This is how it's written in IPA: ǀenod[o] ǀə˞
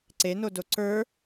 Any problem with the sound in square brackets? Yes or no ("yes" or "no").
no